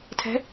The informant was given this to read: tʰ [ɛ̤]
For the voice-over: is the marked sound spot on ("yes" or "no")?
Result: yes